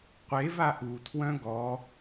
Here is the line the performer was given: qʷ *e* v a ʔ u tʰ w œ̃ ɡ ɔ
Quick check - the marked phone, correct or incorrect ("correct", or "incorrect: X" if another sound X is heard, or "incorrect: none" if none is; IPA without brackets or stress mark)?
correct